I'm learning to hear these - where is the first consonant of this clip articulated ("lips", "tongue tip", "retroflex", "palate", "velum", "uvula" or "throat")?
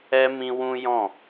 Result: lips